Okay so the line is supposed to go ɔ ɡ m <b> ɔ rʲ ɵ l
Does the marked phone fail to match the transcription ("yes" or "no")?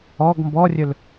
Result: no